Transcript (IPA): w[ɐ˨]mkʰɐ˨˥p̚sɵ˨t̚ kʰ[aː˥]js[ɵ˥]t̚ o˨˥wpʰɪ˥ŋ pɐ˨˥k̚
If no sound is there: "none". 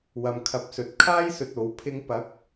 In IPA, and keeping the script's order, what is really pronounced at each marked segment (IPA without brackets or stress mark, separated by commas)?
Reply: ɐ˨, aː˥, ɵ˨